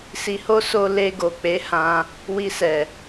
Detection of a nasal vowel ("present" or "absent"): present